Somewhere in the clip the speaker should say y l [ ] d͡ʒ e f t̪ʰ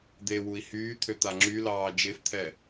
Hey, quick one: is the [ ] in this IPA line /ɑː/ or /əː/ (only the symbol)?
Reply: ɑː